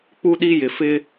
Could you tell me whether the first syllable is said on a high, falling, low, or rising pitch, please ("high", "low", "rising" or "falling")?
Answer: high